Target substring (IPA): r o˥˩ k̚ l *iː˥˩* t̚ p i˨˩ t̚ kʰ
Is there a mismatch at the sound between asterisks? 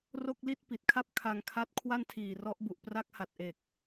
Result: yes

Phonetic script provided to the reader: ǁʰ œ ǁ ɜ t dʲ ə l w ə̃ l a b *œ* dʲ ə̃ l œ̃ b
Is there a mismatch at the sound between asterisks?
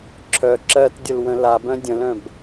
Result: yes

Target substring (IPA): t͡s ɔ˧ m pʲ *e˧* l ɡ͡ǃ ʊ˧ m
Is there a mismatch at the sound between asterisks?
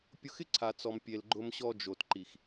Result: no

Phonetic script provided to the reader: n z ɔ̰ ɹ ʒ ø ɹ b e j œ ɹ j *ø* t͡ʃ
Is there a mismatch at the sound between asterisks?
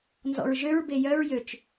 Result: no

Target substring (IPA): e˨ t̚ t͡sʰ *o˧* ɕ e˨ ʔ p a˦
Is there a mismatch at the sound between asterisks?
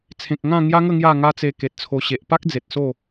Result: no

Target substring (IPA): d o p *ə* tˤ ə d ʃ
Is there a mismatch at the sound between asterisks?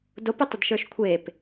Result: yes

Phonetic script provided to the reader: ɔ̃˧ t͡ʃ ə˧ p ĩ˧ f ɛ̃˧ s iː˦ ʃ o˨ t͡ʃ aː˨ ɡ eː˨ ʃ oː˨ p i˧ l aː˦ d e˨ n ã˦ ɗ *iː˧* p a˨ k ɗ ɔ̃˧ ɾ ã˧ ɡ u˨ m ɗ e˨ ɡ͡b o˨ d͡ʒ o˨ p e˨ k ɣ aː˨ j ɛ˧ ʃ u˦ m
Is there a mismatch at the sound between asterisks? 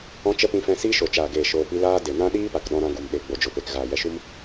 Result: yes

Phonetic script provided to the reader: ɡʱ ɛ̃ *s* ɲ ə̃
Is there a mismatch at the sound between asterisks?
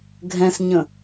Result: no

